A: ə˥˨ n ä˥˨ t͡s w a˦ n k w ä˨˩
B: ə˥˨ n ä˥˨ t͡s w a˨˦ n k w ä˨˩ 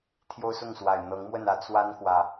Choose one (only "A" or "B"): A